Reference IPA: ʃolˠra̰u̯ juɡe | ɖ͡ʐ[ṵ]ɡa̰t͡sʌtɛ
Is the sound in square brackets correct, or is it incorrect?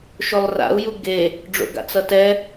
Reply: incorrect